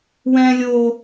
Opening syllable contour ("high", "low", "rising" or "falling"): high